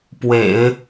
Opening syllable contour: low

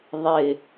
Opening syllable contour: low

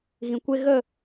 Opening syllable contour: low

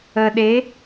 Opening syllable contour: low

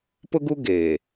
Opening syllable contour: high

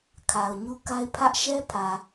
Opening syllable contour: low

